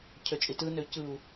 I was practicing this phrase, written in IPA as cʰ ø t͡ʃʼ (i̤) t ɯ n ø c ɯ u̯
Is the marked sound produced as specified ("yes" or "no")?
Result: no